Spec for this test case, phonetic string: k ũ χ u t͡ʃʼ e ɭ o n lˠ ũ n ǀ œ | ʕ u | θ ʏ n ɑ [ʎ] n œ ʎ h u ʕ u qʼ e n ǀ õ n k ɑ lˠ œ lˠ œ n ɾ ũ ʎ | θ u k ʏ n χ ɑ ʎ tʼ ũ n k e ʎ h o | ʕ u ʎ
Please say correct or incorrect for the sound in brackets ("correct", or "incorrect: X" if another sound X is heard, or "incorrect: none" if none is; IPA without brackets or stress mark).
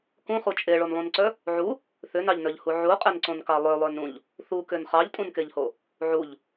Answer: correct